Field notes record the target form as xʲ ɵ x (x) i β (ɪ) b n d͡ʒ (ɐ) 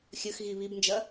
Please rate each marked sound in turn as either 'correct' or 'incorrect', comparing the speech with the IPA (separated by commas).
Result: incorrect, incorrect, correct